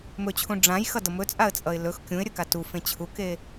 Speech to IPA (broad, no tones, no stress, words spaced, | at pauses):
mɵt͡ɕʰũ ɖ͡ʐãjxʌdʌ mɵt͡sʼaə̯t͡sʼʌɪ̯ lɵx kʲũɪ̯ɾʲɵka tufẽ t͡ɕʰuke